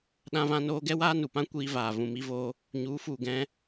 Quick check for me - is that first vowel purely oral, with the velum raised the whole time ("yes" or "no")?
no